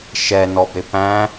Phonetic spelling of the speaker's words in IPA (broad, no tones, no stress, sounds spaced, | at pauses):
ʃ ɛ n ɔ b ɾ ɪ p æ̃